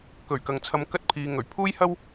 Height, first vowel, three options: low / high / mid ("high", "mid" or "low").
mid